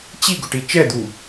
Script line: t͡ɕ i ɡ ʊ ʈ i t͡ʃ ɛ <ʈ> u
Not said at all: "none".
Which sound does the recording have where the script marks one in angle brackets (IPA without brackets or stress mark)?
d̪